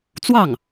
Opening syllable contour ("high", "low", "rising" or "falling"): falling